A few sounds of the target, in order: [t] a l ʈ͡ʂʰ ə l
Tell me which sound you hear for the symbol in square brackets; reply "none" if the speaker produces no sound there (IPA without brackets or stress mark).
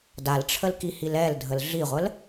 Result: d